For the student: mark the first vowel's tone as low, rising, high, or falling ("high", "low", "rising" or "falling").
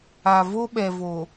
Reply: low